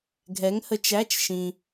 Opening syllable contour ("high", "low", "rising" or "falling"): rising